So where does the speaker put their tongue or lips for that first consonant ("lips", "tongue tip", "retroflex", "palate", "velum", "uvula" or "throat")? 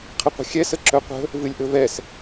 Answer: uvula